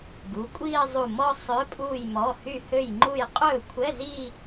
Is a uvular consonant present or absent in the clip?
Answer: present